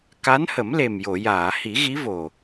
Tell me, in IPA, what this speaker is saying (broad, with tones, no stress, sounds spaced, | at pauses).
k a˧˥ n h ə˨˩˦ m l e˨˩ m j o˨˩˨ j aː˨˩˨ h i˨˩˦ ɣ i˧˥ v o˨˩